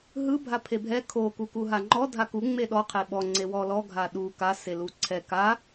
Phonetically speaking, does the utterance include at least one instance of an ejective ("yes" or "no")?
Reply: no